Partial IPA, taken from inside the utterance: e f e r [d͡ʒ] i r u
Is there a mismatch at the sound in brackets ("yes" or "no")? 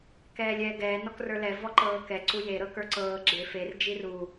no